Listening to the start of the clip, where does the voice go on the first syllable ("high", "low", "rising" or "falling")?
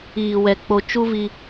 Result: low